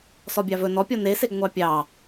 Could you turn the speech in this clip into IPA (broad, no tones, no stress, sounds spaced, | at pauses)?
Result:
s ɔ bʲ ɑ v ɵ n ɔ pʲ ɔ n e s e ɡ ŋʷ ɑ pʲ ɑ